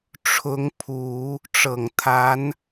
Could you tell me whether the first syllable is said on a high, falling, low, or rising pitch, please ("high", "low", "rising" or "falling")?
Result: rising